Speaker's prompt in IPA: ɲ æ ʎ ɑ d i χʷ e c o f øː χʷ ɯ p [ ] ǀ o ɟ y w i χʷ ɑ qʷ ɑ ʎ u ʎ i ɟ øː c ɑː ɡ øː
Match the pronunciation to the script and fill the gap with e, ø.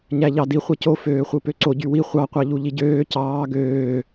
ø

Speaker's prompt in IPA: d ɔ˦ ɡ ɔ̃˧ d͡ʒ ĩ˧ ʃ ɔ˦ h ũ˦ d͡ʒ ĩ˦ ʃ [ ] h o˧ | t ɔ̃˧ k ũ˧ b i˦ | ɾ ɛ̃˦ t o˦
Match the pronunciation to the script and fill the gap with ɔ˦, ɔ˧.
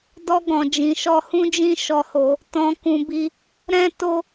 ɔ˧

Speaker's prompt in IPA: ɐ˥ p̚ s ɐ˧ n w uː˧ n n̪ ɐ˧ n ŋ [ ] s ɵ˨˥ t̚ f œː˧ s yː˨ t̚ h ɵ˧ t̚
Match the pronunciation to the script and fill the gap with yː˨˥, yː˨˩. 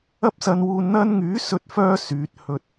yː˨˥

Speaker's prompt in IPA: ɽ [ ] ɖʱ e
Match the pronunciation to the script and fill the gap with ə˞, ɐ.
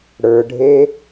ə˞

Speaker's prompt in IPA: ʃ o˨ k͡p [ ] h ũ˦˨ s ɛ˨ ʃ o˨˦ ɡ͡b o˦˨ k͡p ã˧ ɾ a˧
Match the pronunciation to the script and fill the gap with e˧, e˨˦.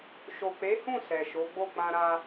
e˨˦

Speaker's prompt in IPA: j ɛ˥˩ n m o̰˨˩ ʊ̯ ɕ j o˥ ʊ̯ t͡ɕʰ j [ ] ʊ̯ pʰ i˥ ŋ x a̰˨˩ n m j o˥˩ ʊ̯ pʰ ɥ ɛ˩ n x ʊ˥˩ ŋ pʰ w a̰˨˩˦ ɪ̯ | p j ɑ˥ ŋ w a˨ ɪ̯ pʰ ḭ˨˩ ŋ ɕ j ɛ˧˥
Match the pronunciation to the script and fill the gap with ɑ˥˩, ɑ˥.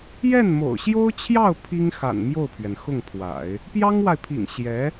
ɑ˥˩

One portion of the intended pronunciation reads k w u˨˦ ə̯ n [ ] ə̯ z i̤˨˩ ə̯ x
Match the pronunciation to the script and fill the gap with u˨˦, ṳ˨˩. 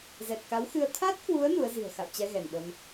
u˨˦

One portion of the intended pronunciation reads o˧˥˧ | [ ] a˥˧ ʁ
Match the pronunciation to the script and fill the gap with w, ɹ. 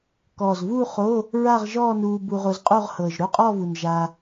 ɹ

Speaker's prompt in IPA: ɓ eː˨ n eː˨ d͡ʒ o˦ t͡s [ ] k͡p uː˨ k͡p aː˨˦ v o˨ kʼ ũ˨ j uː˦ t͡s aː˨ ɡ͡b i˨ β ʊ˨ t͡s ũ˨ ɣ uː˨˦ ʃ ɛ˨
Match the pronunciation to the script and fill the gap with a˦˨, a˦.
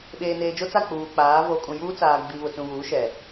a˦˨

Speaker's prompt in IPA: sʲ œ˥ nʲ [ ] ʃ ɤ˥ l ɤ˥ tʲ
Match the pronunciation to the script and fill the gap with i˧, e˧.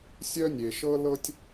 e˧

